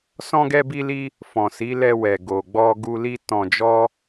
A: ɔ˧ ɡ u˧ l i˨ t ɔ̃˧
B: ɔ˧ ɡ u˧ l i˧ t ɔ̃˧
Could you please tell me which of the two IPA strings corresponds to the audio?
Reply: B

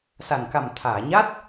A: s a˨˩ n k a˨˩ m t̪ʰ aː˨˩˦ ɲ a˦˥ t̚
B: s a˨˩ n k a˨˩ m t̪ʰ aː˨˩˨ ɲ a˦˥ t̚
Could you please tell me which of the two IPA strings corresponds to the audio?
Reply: B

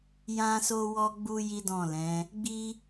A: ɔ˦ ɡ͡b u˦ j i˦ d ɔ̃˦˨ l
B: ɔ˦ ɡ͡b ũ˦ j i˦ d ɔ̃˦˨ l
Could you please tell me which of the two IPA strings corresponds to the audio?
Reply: A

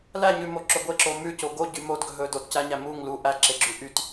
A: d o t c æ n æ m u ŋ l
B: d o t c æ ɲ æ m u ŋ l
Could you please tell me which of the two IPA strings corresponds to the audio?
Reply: B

